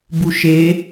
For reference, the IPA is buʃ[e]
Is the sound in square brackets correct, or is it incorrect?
correct